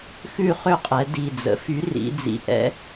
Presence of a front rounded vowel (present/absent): present